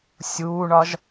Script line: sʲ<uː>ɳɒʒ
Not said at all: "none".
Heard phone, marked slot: uː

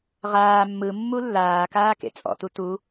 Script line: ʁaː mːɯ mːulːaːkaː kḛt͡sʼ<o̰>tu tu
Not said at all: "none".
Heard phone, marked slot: ɔ̰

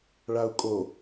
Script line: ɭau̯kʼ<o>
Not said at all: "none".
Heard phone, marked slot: o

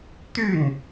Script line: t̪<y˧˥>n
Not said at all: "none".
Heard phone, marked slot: y˥˩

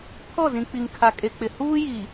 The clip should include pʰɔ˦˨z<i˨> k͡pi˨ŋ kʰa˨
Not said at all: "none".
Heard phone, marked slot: ĩ˨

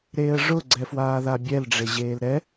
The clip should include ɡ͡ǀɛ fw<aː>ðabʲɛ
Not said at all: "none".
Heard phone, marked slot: aː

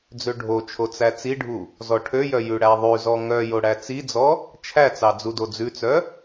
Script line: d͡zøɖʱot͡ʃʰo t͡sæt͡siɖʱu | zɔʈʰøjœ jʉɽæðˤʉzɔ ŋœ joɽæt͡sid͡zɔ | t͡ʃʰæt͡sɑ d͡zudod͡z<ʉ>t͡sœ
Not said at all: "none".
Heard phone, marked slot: ʉ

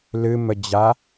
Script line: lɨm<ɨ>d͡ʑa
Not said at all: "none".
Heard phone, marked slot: ə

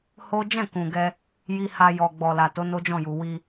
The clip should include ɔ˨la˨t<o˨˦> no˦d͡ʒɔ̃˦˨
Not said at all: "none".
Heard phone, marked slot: o˨˦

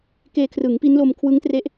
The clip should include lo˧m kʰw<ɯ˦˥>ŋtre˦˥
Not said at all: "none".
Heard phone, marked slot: ɯ˦˥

